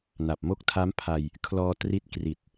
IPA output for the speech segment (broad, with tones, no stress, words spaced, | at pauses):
na˨˩p̚mo˦˥k̚tʰa˦˥m pʰa˧j | kʰlɔː˧tri˦˥t̚ kri˨˩t̚